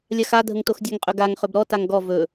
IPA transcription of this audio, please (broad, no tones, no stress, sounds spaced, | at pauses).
lʲ a x a dʱ ə ŋ t o x dʲ ɛ ŋ qʼ ɵ ɡ a ŋ χ ɵ b ɾ ɔ t a ŋ ɡ ɔ v ɵ